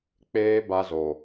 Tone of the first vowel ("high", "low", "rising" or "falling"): high